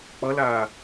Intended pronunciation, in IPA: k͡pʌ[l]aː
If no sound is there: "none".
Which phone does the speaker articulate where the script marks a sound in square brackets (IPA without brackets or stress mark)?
l